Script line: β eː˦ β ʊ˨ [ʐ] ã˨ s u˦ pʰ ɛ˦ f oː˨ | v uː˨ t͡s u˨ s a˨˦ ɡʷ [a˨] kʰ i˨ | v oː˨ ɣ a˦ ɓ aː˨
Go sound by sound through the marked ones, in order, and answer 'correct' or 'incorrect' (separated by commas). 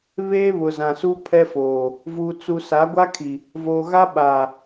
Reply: incorrect, incorrect